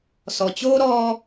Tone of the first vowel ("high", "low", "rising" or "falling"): low